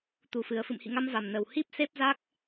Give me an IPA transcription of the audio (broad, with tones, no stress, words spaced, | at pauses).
t̪u˧˩fɨ˨˩ə̯ fɨ̰˧˨mhḭ˧˨ŋa˧m va˨˩mnə˨˩w hi˦˥p̚ se˦˥p̚za˦˥k̚